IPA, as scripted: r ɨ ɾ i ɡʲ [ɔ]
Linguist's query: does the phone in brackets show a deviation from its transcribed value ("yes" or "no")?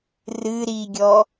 no